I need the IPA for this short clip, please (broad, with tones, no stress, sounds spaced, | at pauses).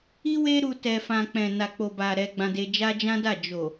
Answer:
i˦ w e˦ ɾ u˧ t ɛ˧ f ã˧ k͡p ɛ̃˨ n a˨ k͡p o˨ b a˨ ɾ ɛ˧ ɡ͡b ã˧ d e˧ d͡ʒ a˦ d͡ʒ ã˦ d a˦˨ d͡ʒ o˨